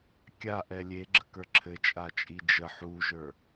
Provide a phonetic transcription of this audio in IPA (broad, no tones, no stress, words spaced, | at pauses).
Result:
kʲaʔɛ lʲeɡ͡ǁəkə˞ ǁʰɘt͡ʃʼat͡ʃʼi d͡ʒə ħuʒə˞